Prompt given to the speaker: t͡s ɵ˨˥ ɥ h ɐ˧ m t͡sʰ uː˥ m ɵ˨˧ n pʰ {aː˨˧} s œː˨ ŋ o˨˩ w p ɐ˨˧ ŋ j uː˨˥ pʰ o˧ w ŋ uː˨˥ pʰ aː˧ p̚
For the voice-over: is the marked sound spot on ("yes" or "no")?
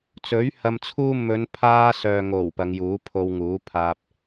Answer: no